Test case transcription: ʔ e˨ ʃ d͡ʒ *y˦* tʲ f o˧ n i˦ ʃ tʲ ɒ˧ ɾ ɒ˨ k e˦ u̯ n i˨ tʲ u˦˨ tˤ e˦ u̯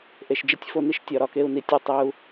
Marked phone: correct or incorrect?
incorrect